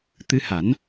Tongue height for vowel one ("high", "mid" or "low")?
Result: high